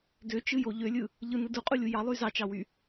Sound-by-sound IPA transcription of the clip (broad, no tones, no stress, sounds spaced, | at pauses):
d ø t͡ʃ ɯ j o ʎ ø lʲ ɯ | ʎ ɯ n ɯ d u qʼ u lʲ u j ɑ lˠ y z ɑ t͡ʃ ɑ w y